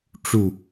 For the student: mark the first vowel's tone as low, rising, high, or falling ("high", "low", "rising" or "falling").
falling